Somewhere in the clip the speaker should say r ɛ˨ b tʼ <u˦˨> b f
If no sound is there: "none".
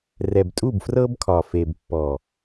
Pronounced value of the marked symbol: u˦˨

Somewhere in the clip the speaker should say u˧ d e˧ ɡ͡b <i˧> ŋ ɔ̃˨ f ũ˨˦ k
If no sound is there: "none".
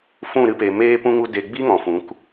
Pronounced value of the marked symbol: i˦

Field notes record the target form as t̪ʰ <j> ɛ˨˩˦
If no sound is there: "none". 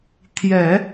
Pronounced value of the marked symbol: j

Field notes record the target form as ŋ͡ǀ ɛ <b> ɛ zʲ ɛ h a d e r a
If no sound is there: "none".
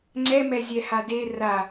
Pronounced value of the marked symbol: m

